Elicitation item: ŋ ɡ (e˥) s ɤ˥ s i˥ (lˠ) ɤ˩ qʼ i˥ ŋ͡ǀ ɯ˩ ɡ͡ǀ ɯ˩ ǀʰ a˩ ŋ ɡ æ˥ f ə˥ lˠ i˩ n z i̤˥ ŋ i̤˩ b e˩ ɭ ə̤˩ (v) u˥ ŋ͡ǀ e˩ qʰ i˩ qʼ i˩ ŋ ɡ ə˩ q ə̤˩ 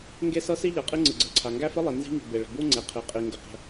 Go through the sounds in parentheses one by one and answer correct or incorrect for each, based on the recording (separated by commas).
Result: correct, incorrect, incorrect